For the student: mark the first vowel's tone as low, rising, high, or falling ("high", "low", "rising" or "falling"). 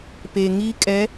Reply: low